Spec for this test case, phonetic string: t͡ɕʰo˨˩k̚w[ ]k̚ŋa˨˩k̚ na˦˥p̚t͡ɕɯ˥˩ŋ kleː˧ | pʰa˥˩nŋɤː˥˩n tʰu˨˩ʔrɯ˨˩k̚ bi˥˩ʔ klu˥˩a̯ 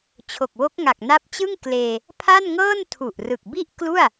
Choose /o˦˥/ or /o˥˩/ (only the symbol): o˦˥